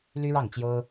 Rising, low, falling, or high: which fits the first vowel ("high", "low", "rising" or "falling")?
high